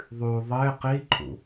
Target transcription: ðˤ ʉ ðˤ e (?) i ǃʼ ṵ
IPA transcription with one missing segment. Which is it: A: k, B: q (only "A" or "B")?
B